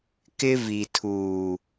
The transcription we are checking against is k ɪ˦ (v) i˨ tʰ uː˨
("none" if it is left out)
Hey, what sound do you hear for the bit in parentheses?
v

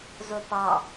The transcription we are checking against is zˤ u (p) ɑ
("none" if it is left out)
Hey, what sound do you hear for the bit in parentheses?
p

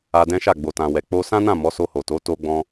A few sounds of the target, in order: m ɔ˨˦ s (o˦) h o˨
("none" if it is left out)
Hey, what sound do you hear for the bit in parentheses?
o˧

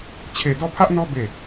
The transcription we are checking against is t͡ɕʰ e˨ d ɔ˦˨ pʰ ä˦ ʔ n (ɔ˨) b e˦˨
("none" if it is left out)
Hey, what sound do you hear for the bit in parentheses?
ɔ˦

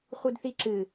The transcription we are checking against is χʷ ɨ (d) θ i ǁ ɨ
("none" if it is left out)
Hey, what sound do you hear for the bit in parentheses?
d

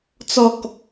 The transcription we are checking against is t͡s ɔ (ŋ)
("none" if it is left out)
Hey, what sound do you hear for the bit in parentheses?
k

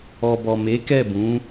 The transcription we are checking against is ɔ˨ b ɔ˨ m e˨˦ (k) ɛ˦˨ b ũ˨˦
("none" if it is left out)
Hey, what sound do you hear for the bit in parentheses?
k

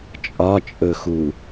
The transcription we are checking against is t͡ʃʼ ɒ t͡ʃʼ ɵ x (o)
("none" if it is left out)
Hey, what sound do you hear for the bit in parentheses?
u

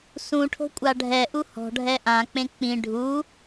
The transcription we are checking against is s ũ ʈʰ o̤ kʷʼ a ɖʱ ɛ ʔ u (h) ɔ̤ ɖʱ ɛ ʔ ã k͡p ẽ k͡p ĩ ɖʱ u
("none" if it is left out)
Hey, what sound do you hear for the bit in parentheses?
h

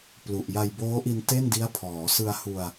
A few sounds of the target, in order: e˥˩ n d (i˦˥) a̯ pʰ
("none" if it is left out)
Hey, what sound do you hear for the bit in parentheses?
i˦˥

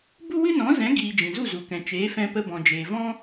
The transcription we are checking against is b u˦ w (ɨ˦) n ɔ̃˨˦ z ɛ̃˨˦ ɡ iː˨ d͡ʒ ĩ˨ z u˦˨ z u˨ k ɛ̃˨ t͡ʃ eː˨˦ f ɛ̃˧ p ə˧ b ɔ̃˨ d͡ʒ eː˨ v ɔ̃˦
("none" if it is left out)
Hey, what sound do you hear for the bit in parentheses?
ɨ˦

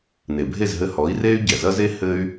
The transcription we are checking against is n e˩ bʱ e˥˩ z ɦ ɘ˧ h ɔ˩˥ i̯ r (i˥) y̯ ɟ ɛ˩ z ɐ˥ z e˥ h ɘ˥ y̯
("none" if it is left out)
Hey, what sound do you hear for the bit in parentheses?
e˥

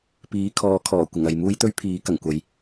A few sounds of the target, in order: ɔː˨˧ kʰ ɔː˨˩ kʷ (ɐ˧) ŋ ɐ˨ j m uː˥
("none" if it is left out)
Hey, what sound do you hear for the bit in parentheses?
ɐ˨˩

